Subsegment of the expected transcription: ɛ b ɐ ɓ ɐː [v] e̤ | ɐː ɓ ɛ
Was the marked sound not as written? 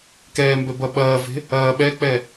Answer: no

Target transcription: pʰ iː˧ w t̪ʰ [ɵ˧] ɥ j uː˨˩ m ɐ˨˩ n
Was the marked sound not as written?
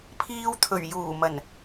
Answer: yes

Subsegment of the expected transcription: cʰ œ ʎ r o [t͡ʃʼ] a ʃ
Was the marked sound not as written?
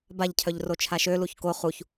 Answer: yes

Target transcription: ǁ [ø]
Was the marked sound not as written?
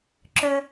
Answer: yes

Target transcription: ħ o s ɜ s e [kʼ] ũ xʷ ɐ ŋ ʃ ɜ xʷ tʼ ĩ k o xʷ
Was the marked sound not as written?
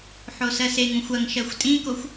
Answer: yes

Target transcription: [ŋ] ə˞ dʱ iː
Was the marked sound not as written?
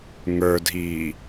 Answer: no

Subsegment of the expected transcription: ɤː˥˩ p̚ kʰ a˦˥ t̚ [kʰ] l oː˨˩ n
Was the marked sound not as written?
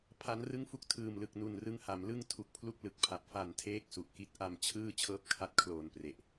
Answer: no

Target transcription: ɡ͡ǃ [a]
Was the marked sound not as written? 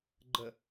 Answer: yes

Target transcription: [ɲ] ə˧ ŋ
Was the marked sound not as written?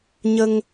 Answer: no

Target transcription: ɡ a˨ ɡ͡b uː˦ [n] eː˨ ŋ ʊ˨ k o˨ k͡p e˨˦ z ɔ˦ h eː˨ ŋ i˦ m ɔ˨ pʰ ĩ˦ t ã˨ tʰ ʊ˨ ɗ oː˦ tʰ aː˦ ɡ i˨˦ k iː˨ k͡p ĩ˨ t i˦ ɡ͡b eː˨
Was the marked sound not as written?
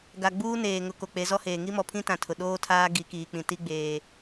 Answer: no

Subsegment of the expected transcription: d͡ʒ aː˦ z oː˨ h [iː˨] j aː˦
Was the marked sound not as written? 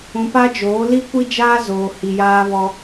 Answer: yes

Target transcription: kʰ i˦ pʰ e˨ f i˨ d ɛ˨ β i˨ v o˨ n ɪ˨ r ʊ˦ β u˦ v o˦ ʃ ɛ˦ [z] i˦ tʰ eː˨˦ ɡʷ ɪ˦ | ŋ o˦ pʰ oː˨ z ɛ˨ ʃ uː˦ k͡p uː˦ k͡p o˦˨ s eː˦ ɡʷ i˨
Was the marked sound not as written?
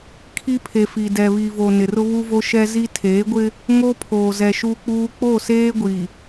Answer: no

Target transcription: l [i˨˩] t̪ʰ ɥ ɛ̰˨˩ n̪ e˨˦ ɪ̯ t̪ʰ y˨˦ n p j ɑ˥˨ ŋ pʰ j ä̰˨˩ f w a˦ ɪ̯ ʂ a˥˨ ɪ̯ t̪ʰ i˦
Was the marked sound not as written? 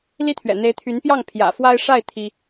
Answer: yes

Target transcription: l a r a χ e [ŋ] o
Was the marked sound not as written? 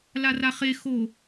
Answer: yes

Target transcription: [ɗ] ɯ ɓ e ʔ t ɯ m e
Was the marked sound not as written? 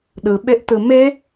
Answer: no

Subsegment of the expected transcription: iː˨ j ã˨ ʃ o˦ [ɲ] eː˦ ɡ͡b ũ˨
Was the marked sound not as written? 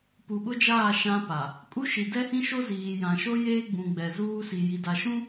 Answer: yes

